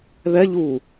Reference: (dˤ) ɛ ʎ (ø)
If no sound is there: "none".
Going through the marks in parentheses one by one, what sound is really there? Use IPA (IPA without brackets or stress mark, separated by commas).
ð, u